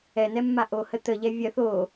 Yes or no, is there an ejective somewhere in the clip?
no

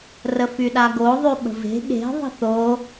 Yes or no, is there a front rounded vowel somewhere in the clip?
yes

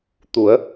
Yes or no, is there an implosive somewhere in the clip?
no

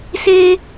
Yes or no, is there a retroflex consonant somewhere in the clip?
no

